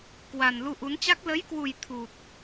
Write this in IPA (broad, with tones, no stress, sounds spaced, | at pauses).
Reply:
k w a˨˩ n l u˧ ʔ u˨˦ n t͡ɕ a˦˥ k̚ l ə˨˦ j k w u˨˩ j t̪ʰ u˨˩ t̚